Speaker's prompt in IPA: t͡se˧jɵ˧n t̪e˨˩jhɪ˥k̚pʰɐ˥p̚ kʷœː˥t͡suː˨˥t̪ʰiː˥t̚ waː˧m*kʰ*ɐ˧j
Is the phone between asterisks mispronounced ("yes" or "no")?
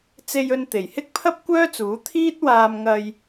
yes